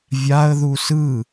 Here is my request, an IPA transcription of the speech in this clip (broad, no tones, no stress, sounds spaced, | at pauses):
vʲ a ə̯ ð u s ɯ